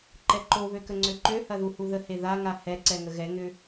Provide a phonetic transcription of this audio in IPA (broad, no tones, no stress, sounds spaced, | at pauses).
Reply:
ǃ ɛ ǃ o β ø k ə ŋ͡ǀ ø ǃ ø h ɐ ð u h u ð ə h e ð a ŋ a h ɛ ǀ ɛ ŋ ə ɣ ɛ ŋ ʏ